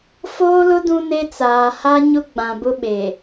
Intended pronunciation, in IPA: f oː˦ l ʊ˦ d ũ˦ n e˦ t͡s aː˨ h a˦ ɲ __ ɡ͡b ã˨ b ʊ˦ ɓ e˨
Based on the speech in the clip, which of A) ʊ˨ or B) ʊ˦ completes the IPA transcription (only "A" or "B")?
B